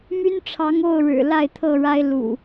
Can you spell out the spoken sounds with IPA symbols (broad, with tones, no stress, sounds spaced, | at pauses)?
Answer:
m y˦ n ʈ͡ʂʰ ɑ˨˦ ŋ o˥˨ ʊ̯ ɻ ɻ̩˨˩ l a˥˨ ɪ̯ t̪ʰ ɤ˥˨ ɻ a˦ ɪ̯ l ṵ˨˩